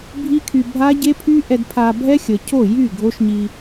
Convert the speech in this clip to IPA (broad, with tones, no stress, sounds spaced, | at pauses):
bʱ i˦ kʰ y˧ bʱ a˦ ɟ e˦ pʰ y˦ ʔ ɛ˧ d pʰ a˧ bʱ ɛ˦ xʲ ə˨ cʰ o˦˨ j y˦˨ ɡʱ o˦ ʃ ɲ i˧